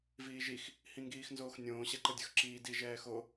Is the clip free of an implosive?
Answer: yes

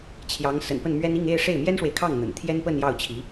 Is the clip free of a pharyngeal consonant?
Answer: yes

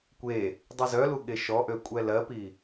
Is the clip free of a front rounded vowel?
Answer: no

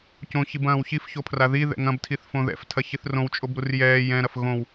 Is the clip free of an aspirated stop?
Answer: no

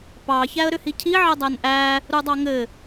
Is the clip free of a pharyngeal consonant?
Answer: no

